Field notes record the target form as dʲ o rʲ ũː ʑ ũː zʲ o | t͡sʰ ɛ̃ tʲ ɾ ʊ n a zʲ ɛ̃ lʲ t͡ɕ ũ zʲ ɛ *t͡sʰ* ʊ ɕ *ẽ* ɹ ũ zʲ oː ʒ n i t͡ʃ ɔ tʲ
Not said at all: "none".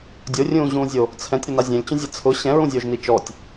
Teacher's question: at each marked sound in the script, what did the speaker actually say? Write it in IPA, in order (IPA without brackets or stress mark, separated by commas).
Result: t͡sʰ, ɛ̃